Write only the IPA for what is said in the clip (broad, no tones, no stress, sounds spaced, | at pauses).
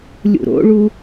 lʲ ṵ ɾ o̰ ɭ u